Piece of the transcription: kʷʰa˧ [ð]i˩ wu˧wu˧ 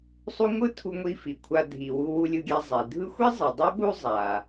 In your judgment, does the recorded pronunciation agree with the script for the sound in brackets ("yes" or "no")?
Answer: no